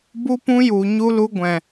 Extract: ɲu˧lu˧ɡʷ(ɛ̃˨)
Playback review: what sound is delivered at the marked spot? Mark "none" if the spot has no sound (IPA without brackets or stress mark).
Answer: ɛ̃˨